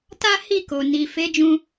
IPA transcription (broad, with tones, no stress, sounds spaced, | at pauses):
t a˦ h i˦˨ k o˨ n i˨ f e˨˦ d͡ʒ ũ˧